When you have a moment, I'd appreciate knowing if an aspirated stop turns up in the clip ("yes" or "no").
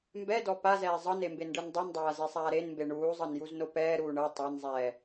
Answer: no